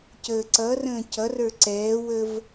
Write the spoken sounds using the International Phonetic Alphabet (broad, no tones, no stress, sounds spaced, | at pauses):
c əː ǀ ʌ r ə̃ː c ʌ r ə˞ ǀ ɛː w ə v